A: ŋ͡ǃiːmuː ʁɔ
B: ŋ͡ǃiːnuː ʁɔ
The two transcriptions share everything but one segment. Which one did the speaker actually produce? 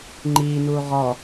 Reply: B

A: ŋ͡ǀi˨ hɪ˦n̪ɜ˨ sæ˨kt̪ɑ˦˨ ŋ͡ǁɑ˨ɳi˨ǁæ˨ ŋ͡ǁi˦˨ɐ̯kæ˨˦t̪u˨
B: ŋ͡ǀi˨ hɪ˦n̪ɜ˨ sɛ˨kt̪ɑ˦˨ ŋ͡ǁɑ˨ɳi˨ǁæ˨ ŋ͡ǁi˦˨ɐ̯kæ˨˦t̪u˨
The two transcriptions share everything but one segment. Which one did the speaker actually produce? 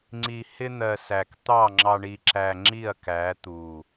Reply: A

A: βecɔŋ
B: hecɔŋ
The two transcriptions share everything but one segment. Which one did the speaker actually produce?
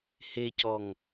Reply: B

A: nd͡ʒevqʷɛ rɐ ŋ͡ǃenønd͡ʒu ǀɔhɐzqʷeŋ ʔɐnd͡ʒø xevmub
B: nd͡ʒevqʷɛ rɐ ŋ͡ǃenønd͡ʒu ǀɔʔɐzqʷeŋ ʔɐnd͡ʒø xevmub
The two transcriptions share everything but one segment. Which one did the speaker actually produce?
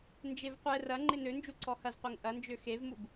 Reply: A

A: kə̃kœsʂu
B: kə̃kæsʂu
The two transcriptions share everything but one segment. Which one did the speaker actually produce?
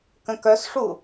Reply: A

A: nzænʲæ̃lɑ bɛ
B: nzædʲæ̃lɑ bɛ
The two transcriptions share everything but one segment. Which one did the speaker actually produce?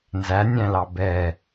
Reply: A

